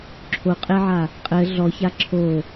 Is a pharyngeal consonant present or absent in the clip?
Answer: present